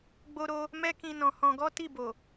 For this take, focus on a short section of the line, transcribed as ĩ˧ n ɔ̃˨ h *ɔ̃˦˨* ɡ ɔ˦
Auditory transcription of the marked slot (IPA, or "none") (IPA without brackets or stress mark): ɔ̃˧